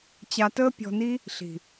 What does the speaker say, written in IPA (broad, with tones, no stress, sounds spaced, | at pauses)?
t͡ɕ a˧ t əː˦ pʲ ɔ̤˧ n i˦ | ɬ i̤˨